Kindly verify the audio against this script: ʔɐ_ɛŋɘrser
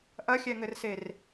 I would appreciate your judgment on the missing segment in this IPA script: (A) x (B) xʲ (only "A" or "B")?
B